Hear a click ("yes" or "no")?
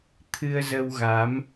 no